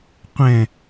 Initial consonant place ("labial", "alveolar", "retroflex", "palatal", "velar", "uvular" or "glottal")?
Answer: uvular